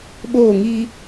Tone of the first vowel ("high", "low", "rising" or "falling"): falling